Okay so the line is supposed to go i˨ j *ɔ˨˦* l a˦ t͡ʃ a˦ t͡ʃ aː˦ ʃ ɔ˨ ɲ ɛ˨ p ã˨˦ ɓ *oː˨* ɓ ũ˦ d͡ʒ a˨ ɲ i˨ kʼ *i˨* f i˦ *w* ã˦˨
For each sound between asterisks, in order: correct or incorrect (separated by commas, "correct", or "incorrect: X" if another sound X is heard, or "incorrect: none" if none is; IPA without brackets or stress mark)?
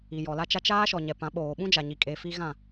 incorrect: ɔ˨, correct, incorrect: e˨, incorrect: ɣ